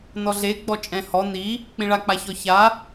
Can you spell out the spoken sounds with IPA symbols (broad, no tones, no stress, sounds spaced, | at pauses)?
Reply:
n ɔ ɮ e ɡ͡b ɔ t͡ʃʼ ɛ̃ h ɔ n i | k͡p ĩ ɭ a k͡p a ç ɔ ç a